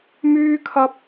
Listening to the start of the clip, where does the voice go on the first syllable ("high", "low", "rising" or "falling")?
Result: high